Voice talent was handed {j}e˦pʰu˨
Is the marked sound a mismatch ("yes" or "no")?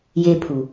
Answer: no